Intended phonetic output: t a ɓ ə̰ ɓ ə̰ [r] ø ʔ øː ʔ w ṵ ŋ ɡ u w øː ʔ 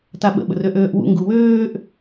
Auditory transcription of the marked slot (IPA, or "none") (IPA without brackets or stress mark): r